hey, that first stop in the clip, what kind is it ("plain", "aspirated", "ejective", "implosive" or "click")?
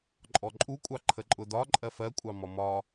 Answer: click